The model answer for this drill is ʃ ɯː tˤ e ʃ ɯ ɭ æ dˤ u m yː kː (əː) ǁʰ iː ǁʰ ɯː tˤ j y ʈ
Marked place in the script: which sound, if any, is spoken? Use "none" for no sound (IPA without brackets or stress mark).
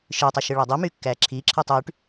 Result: æː